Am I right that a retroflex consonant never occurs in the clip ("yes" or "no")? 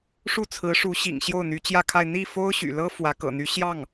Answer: no